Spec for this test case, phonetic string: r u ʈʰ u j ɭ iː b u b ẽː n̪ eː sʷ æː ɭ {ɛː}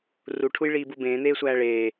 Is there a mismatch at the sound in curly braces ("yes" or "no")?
yes